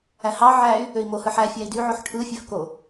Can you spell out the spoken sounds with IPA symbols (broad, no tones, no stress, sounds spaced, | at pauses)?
æ h ɑ ʕ æ y̯ | ø i̯ m o h ɯ ħ æ fʲ æ i̯ d y ʕ o ħ ʈʰ ɯ fʲ ø f k o